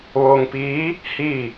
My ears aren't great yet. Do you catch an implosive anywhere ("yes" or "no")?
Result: no